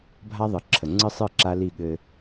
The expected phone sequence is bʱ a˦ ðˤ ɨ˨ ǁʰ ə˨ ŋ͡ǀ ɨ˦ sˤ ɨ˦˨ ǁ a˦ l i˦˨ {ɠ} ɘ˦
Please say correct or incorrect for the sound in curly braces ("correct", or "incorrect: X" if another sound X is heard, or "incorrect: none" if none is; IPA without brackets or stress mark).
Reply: correct